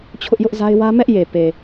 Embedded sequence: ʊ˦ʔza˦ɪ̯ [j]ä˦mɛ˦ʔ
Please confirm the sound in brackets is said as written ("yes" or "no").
no